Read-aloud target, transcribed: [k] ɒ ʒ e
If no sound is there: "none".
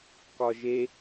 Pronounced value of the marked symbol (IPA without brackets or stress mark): k